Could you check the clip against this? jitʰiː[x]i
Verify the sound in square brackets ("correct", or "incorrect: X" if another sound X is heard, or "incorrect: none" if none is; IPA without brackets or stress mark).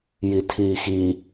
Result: correct